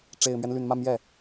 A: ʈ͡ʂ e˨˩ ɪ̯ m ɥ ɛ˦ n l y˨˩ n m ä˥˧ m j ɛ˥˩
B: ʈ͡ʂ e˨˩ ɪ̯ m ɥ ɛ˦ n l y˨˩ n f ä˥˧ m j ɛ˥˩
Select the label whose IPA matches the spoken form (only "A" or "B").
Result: A